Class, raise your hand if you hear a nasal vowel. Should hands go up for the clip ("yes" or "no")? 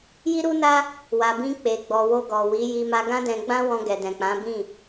yes